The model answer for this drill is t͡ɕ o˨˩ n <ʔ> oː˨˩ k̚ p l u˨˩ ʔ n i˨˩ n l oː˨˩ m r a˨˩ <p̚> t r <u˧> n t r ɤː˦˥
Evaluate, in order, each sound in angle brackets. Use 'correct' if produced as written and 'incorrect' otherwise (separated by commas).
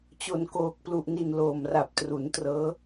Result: incorrect, correct, incorrect